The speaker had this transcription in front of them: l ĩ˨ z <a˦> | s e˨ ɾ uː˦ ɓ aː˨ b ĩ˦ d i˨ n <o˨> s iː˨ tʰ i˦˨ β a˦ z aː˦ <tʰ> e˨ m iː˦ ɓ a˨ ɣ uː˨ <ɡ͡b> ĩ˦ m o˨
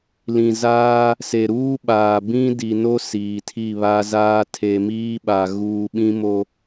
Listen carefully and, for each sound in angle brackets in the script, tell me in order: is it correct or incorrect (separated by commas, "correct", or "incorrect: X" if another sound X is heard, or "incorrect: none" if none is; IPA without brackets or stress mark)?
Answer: incorrect: aː˦, incorrect: o˦, correct, incorrect: ɓ